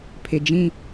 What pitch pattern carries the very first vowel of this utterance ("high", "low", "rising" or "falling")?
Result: low